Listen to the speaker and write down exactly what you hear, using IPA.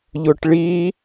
ʎ ʊ ʈ ɭ i

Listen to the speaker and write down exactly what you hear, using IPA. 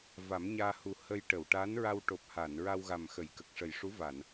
v a˨˩˦ m ɲ aː˧ h u˨˩ h ə˧ j ʈ ə˨˩˨ w ʈ aː˧˥ n ɹ a˧ w ʈ o˨˩ p̚ h aː˨˩˨ n ɹ a˧ w ɣ a˨˩ m x ə˨˩˨ j k ə˨˩ k̚ ʂ ə˨˩ j ʂ u˧˥ v a˨˩˨ n

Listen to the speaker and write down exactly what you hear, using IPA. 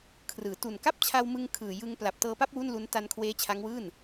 kʰ r ɯː˩˦ t u˨˩ n k a˥˩ p̚ t͡ɕʰ a˧ w m ɯ˧ ŋ kʰ ɯː˨˩ j ɯ˧ ŋ p l a˨˩ p̚ t ɤː˧ p a˥˩ p̚ w u˥˩ n l u˦˥ n t a˧ n kʰ w eː˦˥ t͡ɕʰ a˦˥ ŋ w ɯː˥˩ n

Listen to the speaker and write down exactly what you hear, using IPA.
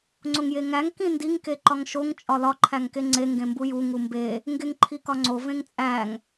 ŋ͡ǀ o ŋ j e ŋ æ ŋ k ĩ n d i ŋ k e ǃ ɒ ŋ ʃ o ŋ t͡ʃʼ ɒ l ɒ ǃʰ æ ŋ k e ŋ͡ǀ e ŋ ɡ ẽ m b u j u ŋ u m b e | ŋ ɡ e ŋ ǃʰ i k ɒ ŋ͡ǀ o v ẽ ŋ t͡sʼ æ ŋ

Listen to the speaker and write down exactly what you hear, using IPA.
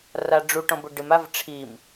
r a ɖ͡ʐ u ʈ ɔ̃ b ʊ ɖ ɪ m a v ʈ͡ʂʰ i m

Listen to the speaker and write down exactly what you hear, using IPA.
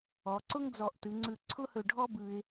ɔ˩˧ ǀ ʊ˥ ŋ d͡z ɔ˧˩ ʔ t ɯ˩˧ ŋ͡ǀ ɯ˧˩ ǀʰ ʊ˥ h ɵ˧˩ ɖʱ ɔ˥ b ɯ˧ ɪ̯

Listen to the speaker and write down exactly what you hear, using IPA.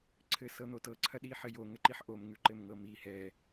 ǀʰ ɘ s ɤ n̪ o t ɤ ǀʰ ɐ ɗ i ħ ɘ j o ŋ ɘ ǃ i ħ ʔ o m ŋ ʉ ǃ ɘ m ŋ ɤ m i h ɛ

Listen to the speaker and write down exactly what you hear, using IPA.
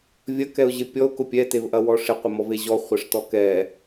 vʲ ɐ k ɛ ʊ̯ ʑ ɪ pʲ ɔ ʊ̯ k ʊ pʲ ɛ t e v ʔ ɐ w ɔ ʂ ɪ qʷ ɪ m ɔ v e ʑ ɔ χʷ ɐ ʂ t ɔ k ɛ

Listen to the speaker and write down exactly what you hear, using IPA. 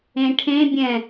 ẽ ʈʰ ẽ bʲ ɛ̃

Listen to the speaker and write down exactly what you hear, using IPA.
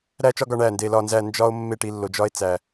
ɾ æ˥˧ t͡ʃ ɒ˥ ɡ ɒ˧ ɳ æ˧˩ n d e˧˩ l ɒ˥˧ n z æ˥˧ n d͡ʒ ɒ˧ o̯ mː e˥˧ ʈ i˥˧ lː o˧ d͡ʒ ɒ˥ e̯ t͡s æ˧

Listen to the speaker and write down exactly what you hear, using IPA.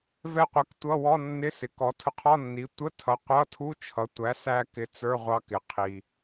v ɛ˧ qʷ ɛ˩˥ k tʷ ʌ˧˥˧ w ɔ˧˥˧ nː ɪ˧˥˧ s ɪ˩ k ɔ˩˥ tʰ ʊ˧ qʰ ɔ˧˥˧ nː i˩˥ tʷ ə˧˥˧ tʰ ʌ˩˥ qʷ ʌ˧˥˧ tʰ u˧˥˧ t͡ʃʰ ʌ˩˥ tʷ æ˩˥ s æ˧ k ɪ˩˥ t͡s ə˞˧˥˧ ʁʷ ɑ˧ k ɪ˩ qʰ i˩

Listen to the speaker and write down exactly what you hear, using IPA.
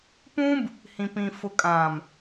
p ũ˦ b | h ĩ˨ p ĩ˨ f ʊ˨ kʼ ã˨ m

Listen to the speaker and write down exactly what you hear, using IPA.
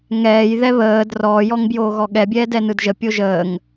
ŋ ɛː j ð ɛ β əː d r ɔː j ɔ ŋ b j oː ɣ ɔ ɠ ɛ bʲ ɛː d ɛ n ɯ d ʒ ə pʲ o ʒ əː ŋ

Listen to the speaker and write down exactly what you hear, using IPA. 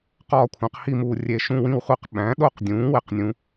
q ɒː˥˨ kʷʰ æ̃˩˥ q h i˥˨ m uː˧˩ rʲ e˧˩ ʃ ũ˥˨ w ĩ˥˨ w χʷ i˥˨ q ɓ æ̃˩˥ ɗ o˥˨ q dʲ ũː˩˥ w e˩˥ q nʲ ũ˩˥

